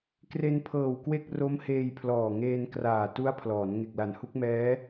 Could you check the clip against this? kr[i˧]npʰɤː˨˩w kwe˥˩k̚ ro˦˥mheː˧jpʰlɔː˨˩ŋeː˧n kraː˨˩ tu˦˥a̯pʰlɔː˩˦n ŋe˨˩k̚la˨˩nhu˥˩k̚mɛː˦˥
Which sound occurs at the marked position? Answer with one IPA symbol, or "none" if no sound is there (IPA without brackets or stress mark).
e˧